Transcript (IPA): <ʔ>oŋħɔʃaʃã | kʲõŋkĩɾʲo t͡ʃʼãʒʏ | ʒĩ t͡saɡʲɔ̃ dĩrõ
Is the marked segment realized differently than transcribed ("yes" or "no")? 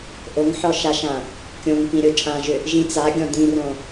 no